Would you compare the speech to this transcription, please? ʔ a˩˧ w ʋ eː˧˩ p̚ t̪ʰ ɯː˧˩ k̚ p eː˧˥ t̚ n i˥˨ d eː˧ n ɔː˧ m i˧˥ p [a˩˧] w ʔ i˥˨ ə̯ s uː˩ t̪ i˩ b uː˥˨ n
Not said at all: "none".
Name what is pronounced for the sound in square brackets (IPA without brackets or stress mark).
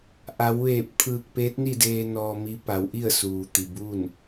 a˩˧